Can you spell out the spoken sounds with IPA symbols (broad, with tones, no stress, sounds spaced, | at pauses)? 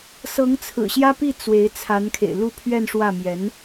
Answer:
s ɤ˧˥ ŋ t͡sʰ ɹ̩˨˩ ɕ j ä˥ p i˥˩ t͡s w e˧˥ ɪ̯ t͡sʰ a˧˥ n kʰ ḛ˨˩ ɪ̯ l u˥˧ pʰ ɥ ɛ˥˧ n ʂ w ä˥˩ m j ɛ˧˥ n